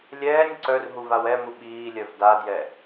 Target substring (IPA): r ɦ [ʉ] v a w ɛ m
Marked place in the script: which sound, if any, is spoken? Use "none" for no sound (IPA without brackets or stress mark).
u